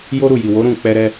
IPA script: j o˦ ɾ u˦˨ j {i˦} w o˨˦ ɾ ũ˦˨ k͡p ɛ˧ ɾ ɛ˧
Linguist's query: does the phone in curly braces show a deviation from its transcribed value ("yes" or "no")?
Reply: yes